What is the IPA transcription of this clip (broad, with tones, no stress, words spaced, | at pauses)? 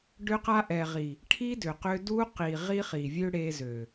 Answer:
ɖʏ˧qa˧ʔɛ˨ʁi˨ | ʈʰi˦dʏ˨qʏ˧ du˦ qi˨ ʁi˦χi˨vʲø˦ ɽe˧zø˨